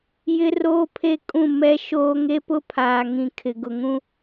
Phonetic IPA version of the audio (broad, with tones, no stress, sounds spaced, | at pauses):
j ɪ˦ r oː˦ pʰ e˦ kʼ ũ˦˨ m ɛ˦ ʃ oː˦ ŋ e˦ p ʊ˦ pʰ aː˨ ŋ ĩ˨ kʰ ɪ˨ ɡ ʊ˨ ŋ ũ˦